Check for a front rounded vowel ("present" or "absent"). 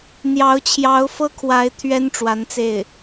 absent